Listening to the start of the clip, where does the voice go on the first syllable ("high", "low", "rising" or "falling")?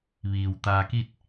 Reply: low